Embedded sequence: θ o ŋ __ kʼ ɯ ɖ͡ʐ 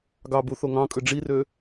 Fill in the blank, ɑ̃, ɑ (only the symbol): ɑ̃